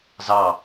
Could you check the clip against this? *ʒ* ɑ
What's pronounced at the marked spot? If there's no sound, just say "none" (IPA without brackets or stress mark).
z